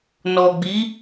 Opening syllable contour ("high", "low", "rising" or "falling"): low